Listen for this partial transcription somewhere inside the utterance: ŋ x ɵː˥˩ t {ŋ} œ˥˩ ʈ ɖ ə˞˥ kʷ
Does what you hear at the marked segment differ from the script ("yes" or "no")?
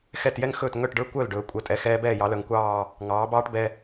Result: no